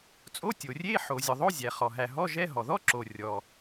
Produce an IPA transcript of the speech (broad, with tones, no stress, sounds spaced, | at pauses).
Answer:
t͡sʼ o˧˥˧ tʲ o˩ rʲ e˧˥˧ ħ o˩ zʲ ɔ˩ ðˤ o˧˥˧ zʲ æ˩ χ ɔ˩ ɦ æ˩ ɦ ɔ˧˥˧ ʒ ɛ˧˥˧ ɦ ɔ˩ ð ɔ˧˥˧ ǁ o˩ rʲ ɔ˩